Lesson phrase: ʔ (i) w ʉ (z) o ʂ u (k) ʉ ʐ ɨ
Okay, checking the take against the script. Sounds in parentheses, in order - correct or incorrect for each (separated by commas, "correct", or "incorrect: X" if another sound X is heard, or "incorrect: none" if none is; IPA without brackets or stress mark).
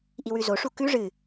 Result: correct, correct, correct